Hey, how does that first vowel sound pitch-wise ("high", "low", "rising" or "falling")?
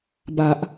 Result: low